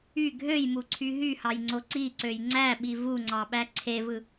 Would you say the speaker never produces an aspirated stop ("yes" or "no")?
no